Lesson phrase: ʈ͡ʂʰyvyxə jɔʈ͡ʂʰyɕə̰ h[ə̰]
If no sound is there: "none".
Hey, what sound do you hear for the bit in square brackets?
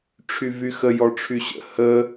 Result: ə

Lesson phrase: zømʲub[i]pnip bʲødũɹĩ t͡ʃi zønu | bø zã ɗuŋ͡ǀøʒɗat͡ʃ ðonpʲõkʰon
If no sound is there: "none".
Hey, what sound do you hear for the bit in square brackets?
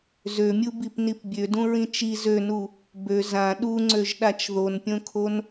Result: i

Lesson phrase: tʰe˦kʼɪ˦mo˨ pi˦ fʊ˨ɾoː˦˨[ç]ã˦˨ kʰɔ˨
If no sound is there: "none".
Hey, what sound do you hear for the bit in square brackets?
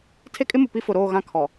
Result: ɣ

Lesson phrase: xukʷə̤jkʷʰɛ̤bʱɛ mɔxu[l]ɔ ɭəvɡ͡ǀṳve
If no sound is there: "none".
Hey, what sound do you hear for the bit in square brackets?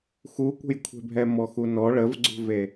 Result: n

